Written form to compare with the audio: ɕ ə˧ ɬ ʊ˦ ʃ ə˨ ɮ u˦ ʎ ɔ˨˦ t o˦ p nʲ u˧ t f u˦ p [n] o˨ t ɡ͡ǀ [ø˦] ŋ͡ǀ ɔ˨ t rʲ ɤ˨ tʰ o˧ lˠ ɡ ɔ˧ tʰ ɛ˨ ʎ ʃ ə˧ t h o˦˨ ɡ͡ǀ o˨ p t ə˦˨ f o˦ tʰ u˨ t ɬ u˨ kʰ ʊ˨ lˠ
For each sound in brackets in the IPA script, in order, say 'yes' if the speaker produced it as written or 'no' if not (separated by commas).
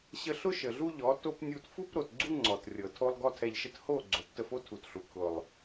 no, no